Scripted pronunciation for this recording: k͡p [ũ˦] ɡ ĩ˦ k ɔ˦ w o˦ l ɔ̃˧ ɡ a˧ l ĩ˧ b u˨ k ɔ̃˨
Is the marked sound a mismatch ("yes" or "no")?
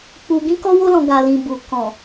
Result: yes